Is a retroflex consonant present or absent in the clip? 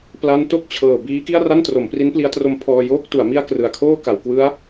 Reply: absent